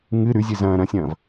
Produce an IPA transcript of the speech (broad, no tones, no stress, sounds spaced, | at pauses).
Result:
ŋ ɨ ɾ ʉ zʲ ɨ z ɐ̃ː ɾ ɐ̃ sʲ ɐ̃ː v